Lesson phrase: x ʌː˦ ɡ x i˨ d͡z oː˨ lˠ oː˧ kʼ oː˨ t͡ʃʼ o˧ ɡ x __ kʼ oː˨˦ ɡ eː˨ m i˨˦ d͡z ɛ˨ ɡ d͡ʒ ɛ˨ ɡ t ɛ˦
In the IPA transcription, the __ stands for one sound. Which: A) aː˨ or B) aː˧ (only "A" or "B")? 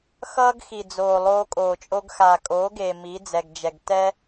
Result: A